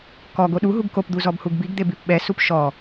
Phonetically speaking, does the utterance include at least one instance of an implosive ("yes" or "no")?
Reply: yes